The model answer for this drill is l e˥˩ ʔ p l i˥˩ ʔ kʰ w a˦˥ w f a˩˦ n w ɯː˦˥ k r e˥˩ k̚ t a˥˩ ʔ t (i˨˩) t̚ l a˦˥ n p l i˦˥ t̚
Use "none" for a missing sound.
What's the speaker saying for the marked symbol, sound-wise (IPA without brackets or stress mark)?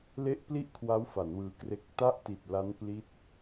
i˨˩